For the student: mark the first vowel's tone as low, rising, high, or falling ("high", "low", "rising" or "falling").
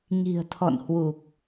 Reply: low